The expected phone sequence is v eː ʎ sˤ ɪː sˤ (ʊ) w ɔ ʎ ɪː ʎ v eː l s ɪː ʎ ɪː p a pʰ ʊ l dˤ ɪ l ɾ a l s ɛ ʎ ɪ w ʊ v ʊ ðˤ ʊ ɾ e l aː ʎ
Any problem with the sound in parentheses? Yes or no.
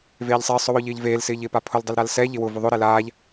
no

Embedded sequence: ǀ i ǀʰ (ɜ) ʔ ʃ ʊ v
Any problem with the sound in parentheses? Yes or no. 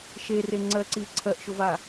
no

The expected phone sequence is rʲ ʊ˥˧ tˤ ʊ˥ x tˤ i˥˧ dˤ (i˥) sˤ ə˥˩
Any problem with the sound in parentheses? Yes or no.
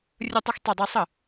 no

